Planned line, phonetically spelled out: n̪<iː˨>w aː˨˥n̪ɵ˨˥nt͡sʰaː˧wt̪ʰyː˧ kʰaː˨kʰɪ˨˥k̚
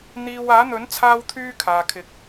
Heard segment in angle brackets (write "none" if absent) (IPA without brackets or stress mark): iː˧